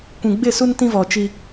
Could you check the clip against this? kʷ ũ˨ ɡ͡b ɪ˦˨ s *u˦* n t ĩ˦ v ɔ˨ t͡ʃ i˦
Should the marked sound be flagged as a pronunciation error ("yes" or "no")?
no